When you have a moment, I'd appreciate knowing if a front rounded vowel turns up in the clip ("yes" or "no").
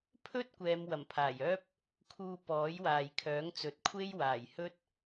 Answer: yes